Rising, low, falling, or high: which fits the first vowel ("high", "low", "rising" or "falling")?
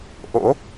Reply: rising